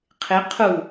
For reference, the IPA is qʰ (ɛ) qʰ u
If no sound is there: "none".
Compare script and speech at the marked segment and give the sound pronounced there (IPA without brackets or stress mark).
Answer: ɪ